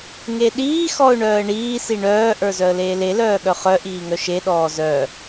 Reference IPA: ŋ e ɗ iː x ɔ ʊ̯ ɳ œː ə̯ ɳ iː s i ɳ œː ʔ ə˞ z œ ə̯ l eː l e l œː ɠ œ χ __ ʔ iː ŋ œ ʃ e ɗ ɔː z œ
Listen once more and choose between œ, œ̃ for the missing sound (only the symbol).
œ